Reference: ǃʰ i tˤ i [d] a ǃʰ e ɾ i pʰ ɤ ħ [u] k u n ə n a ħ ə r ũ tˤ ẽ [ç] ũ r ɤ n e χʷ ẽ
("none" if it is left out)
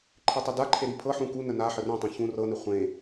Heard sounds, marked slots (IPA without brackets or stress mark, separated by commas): d, ũ, ç